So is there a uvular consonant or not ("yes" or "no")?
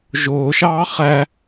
yes